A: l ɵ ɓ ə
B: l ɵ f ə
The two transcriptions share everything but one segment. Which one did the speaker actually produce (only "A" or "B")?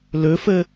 B